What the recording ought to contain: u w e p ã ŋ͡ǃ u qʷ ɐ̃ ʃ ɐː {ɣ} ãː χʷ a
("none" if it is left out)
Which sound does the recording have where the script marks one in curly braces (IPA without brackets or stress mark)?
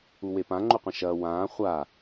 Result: w